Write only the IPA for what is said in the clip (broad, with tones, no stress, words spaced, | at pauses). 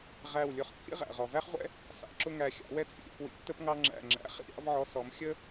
ʁæ˦˨wlʲʊ˧˥χt͡sʼḭ˥ ʁæ̰˨ʁɔ˨ væ˥χʁʷɛ̰˥ | sɑ̰˧˥ǁʊ˥ ŋæ˦˨xʲɑ̰˧˥wɛ˥ t͡sʼḭ˨ɾʲɛ̰˧˥p wḭ˧˥p tə˥pŋɑ˥ŋ͡ǁæ̰˦˨ ŋ͡ǁæ̰˧˥χḭ˥ ɾʲɑ̰˥vʕɔ˧˥ sɔ˧˥m xʲə˥